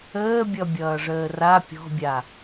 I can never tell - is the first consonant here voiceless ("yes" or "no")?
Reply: no